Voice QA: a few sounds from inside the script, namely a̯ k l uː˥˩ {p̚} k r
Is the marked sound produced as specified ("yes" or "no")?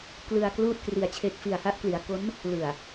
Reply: no